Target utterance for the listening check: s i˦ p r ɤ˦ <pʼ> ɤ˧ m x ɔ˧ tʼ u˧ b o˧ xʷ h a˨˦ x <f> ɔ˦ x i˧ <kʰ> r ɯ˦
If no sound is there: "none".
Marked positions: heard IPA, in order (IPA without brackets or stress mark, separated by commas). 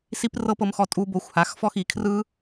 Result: p, f, kʰ